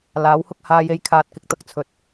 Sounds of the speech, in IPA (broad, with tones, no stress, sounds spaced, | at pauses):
l aː˨˥ w h ʊ˥ k̚ h aː˧ j e˧ j kʰ aː˧ t̚ k ɪ˨ k̚ t̪ ɐ˥ k̚ t͡sʰ ɵ˨ t̚